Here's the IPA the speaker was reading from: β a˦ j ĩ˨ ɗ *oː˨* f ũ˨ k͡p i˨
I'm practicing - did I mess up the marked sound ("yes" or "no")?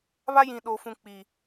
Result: no